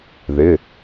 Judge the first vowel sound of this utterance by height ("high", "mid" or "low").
high